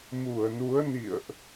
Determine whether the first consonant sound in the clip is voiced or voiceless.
voiced